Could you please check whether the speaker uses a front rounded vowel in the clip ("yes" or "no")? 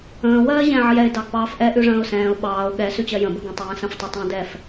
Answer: no